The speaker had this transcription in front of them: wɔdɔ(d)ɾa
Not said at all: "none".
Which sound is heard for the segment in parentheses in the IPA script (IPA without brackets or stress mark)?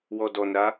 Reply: n